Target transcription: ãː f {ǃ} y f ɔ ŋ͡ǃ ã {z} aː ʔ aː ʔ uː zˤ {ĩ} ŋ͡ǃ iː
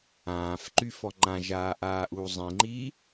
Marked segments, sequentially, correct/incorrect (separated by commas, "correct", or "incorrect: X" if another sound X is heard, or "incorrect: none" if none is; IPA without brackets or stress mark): correct, incorrect: ʒ, correct